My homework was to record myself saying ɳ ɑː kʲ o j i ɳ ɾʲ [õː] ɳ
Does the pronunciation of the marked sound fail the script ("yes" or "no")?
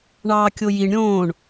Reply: no